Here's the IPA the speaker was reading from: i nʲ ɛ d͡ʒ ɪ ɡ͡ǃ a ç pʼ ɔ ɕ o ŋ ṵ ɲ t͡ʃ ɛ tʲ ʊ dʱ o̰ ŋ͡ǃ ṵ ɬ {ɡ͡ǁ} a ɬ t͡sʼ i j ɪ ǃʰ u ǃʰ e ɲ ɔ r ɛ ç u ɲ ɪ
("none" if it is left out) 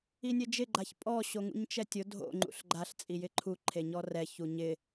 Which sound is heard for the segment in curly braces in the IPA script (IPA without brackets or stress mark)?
ɡ͡ǃ